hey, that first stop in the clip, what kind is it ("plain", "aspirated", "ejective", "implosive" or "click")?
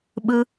implosive